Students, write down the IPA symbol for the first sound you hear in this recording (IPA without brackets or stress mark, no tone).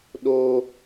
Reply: ɗ